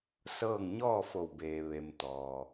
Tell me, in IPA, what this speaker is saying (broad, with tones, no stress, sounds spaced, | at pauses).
s ɤː˥˨ ŋ ɲ ɔː˥˨ f o˧˩ w b eː˩ ʋ e˩ m t̪ ɔː˩